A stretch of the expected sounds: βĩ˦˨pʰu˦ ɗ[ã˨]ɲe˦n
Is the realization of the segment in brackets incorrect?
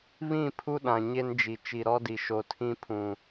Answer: no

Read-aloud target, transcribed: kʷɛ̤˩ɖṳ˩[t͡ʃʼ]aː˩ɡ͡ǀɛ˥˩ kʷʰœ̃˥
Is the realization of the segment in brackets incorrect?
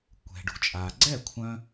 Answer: no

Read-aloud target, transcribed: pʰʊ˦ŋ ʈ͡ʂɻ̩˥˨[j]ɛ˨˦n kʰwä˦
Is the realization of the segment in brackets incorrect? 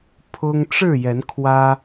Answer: no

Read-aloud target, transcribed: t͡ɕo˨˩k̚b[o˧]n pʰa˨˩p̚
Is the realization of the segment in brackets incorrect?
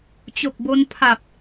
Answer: no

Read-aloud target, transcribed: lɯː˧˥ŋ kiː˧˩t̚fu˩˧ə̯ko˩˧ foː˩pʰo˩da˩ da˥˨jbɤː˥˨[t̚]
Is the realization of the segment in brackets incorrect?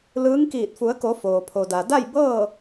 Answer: yes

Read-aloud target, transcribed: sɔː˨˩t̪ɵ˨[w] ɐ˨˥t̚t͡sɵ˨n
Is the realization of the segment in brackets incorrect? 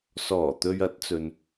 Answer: yes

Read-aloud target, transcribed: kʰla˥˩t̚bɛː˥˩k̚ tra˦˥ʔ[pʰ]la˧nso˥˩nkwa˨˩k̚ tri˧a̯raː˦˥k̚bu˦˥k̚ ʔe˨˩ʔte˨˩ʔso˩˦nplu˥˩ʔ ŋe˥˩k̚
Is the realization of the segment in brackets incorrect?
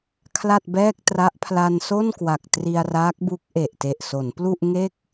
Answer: no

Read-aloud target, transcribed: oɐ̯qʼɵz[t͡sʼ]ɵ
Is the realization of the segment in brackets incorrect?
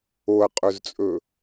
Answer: no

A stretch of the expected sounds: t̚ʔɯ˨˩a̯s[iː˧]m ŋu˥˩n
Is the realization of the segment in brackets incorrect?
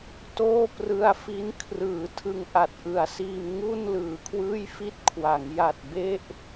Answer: no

